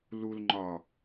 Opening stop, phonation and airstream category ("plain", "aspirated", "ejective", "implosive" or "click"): click